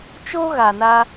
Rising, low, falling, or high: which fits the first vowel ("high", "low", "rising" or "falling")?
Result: high